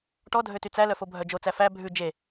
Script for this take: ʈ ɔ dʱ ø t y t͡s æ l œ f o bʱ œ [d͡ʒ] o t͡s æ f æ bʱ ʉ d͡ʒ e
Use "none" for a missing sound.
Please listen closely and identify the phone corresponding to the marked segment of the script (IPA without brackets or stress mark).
d͡ʒ